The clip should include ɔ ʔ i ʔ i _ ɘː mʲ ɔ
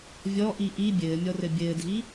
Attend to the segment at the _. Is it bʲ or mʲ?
bʲ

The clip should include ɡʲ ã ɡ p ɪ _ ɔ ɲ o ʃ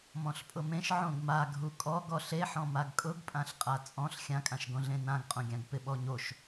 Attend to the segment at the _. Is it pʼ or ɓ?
ɓ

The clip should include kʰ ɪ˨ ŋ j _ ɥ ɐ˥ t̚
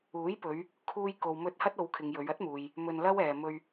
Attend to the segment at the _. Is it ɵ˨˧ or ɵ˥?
ɵ˨˧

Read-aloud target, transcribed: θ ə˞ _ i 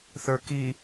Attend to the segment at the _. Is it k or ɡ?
k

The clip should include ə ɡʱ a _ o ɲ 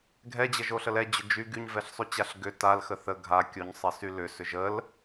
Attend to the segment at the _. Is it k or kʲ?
kʲ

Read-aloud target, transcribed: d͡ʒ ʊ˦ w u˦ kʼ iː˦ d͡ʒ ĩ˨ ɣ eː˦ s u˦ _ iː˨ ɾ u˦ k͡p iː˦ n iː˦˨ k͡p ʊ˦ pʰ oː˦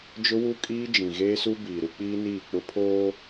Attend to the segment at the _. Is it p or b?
b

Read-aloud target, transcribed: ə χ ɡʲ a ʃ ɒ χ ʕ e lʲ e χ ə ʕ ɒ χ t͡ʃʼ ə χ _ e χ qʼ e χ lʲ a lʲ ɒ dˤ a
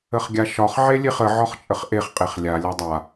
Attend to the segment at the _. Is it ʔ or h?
ʔ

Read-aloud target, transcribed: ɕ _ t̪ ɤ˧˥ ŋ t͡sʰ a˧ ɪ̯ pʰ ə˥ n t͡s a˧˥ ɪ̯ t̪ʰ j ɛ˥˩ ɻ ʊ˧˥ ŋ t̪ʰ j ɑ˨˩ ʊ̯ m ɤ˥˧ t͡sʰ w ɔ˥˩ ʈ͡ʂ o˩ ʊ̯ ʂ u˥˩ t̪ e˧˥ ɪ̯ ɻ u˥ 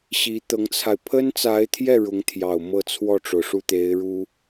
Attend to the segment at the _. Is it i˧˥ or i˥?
i˧˥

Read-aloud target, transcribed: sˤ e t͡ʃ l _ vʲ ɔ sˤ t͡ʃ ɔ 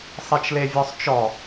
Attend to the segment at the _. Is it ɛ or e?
e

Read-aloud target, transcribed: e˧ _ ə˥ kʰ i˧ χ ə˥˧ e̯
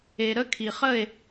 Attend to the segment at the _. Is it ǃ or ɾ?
ɾ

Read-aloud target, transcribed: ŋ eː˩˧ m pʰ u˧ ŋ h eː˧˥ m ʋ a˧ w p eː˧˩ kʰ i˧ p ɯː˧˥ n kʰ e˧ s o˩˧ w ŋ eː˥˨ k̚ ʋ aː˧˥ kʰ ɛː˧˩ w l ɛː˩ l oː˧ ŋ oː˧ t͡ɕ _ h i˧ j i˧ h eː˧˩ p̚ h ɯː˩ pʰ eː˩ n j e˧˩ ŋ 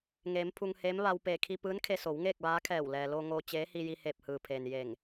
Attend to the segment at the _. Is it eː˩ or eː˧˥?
eː˧˥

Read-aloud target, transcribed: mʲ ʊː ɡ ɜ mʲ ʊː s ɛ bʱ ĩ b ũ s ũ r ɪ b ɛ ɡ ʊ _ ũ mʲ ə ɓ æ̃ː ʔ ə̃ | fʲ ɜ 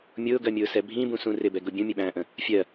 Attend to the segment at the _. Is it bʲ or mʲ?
bʲ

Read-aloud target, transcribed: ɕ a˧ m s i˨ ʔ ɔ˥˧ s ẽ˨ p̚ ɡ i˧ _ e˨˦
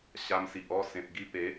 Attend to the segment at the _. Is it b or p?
p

